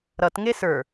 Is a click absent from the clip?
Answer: yes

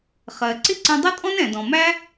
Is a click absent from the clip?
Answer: no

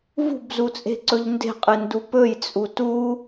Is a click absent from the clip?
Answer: no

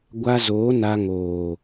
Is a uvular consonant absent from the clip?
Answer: yes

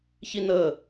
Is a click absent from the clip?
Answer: yes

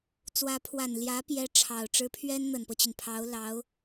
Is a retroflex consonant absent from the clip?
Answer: no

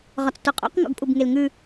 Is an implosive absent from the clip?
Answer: yes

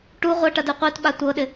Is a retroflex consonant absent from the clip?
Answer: no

